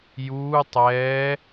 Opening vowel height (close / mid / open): close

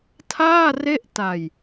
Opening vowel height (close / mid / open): open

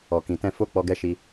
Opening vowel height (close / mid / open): mid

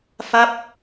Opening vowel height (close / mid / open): open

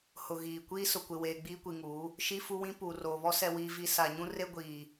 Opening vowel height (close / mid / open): close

